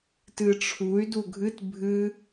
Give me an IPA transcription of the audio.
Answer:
t ɨ ʈ͡ʂʰ u y̯ d u ɡʱ ɨ t bʱ ɨ

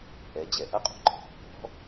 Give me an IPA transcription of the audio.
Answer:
ʔ ɛ˩˧ d͡ʑ ɛ˩ ʔ ɐ˥ qʼ ṳ˩ ǃʼ ɛ̤˩ ɾ ṳ˧˥ b ɔ̤˧˥

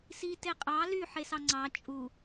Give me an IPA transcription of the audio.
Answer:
s i t e qʼ ɑ l y ħ e s ɑ ŋ͡ǀ ɑ t͡ʃʼ u

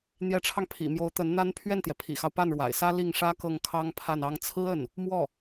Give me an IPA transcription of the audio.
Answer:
n̪ j ɛ˧˥ ʈ͡ʂʰ ɑ˧ ŋ pʰ ḭ˨˩ m j o˧˥ ʊ̯ t̪ ə˧˥ n n̪ a˥ n pʰ ɥ ɛ˥˩ n t̪ j ɛ˩ pʰ ḭ˨˩ x ɑ˦ ʊ̯ p a˥˩ n ɻ w a̰˨˩ ɪ̯ s ä˥ l i˥˩ ŋ ʂ ä˥ k ɤ˥˩ ŋ kʰ ɑ˥ ŋ pʰ a˥˩ n ɑ˥ ŋ t͡sʰ ɹ̩˥ ə˥˩ n | m w ɔ˥˩

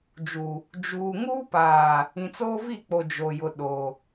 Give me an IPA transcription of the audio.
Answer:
d͡ʒ u˨ | d͡ʒ uː˨ ŋ uː˦ p aː˨ | ĩ˨ t͡s oː˦ v i˦˨ k͡p o˨ d͡ʒ o˨ j ʊ˨ ɗ o˨

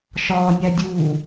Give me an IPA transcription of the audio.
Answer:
ʃ ɒː nʲ æ dʲ uː

